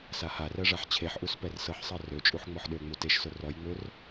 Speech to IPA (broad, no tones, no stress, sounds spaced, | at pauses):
s a h a r ɜ ʐ a ħ t͡ɕʰ e ħ ʔ u s p ɛ r s ɤ ħ sˤ ɜ r ø t͡ʃʼ u ħ ŋ͡m ɔ ħ ɗ ø ŋ͡m u t e ʃ s ʊ r ɔ j ŋ͡m ø r